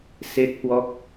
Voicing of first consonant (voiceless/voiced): voiceless